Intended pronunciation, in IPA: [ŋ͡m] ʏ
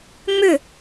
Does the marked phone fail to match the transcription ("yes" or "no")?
no